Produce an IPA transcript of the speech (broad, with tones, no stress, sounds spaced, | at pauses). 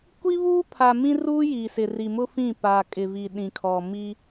kʷ i˦ β uː˦ pʰ a˨ m ĩ˦ r uː˦ j i˨ s ɪ˨ r i˨ m ʊ˦ f ĩ˦˨ p a˨ kʼ ɪ˨ v i˨ ɗ ĩ˨ kʰ ɔ˨ m i˦